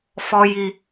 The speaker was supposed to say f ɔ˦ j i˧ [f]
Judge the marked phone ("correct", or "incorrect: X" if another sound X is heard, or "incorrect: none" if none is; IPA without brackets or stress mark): incorrect: none